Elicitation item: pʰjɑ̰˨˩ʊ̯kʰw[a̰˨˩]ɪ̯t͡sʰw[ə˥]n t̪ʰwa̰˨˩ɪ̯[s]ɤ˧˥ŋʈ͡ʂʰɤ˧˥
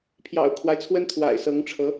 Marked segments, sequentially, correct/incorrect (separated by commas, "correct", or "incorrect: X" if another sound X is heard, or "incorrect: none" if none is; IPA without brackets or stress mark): incorrect: a˦, correct, correct